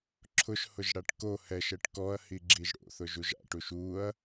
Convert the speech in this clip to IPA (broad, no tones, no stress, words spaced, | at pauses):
ǁʰʊʃhʊʒɽaʈ ko hɛʃɛʈ kɔɐ̯hiɡ͡ǁiʒ ɽo̰θʊʒuʒ a̰ʈuʃ uɐ̯